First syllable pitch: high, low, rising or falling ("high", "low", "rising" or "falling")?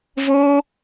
high